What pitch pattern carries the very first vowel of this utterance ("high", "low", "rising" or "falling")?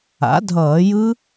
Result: rising